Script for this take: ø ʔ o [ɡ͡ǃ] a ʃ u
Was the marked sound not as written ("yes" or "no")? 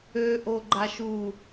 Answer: no